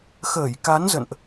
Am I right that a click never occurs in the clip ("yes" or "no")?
yes